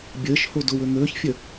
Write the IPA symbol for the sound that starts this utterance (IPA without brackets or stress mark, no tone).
bʲ